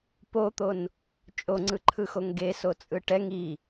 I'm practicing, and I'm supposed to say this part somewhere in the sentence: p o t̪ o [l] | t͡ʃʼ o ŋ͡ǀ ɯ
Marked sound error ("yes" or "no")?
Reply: yes